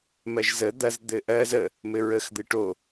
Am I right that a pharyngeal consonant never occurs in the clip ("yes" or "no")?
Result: yes